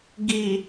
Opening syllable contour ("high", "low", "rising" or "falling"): low